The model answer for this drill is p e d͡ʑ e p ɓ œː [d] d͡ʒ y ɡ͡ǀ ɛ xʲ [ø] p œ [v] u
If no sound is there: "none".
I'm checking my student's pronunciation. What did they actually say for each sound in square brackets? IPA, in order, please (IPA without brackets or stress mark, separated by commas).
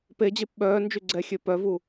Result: n, ø, v